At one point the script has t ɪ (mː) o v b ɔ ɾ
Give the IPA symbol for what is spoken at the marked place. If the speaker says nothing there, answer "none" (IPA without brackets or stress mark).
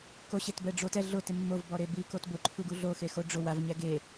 mː